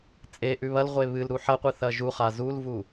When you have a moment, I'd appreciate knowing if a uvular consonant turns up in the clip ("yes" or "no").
yes